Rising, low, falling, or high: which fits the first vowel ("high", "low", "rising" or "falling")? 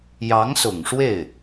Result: rising